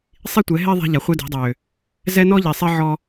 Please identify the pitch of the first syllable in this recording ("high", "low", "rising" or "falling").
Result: high